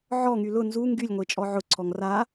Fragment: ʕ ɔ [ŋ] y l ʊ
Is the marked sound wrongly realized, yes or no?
no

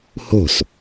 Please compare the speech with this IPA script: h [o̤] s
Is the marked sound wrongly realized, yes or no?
no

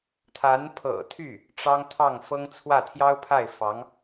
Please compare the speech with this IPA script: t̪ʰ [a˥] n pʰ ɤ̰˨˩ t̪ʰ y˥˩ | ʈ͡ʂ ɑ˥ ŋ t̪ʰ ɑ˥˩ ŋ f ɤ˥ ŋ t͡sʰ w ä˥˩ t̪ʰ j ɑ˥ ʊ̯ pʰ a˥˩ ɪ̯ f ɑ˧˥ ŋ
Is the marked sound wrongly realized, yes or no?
yes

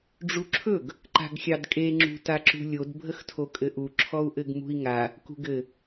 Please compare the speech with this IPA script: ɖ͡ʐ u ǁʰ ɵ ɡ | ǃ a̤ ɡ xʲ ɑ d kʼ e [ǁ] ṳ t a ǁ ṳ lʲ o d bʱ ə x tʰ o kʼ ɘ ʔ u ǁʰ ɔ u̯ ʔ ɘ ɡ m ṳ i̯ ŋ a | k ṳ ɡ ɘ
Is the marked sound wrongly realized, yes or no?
yes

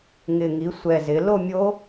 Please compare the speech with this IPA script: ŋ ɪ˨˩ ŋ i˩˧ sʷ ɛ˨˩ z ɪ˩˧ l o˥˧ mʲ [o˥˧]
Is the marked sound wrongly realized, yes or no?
yes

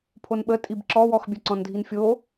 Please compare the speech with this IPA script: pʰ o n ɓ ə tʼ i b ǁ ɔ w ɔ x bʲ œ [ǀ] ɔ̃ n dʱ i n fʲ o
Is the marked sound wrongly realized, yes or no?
no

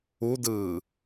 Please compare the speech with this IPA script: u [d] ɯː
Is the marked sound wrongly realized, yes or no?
no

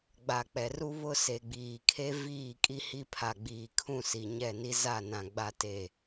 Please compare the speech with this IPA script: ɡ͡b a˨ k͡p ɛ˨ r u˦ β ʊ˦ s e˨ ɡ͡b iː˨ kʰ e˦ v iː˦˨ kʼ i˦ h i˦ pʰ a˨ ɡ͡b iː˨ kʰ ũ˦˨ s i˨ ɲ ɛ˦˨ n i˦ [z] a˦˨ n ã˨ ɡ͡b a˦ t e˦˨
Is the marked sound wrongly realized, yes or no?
no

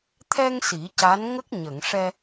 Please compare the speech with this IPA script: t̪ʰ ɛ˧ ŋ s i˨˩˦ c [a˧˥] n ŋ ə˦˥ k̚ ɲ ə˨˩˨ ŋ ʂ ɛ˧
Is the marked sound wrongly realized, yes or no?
no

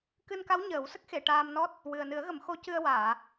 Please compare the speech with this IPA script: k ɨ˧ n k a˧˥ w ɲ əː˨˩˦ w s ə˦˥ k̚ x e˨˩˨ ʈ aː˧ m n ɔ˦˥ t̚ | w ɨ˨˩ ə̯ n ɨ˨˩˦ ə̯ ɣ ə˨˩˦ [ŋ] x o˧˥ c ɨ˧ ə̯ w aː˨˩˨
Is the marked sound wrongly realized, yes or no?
yes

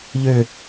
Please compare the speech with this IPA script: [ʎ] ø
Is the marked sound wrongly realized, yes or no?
no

